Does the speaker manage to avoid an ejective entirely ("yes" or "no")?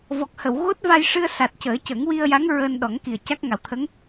yes